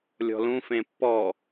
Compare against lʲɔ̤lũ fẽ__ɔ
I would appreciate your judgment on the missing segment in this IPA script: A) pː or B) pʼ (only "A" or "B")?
A